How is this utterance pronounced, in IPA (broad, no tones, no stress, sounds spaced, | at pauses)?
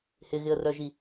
h ɪ ɣ ɪ ə̯ r œ ʒ i